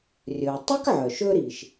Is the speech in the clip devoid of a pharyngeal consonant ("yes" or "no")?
no